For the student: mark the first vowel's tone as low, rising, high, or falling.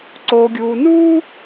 low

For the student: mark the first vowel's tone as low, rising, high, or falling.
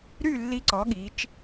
falling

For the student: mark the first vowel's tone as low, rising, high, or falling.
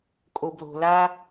low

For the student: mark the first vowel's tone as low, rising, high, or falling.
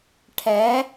rising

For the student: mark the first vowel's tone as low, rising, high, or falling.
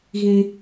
high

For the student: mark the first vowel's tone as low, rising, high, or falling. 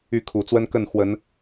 falling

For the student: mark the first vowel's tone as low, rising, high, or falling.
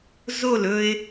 falling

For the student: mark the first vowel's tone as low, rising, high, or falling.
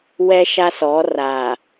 high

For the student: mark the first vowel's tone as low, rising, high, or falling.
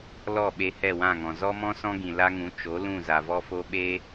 falling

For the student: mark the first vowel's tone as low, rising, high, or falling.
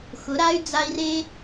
rising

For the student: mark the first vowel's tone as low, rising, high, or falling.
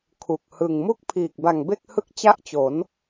low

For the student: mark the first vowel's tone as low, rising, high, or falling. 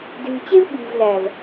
low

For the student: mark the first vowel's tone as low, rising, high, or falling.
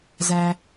low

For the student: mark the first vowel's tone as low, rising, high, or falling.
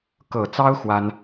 low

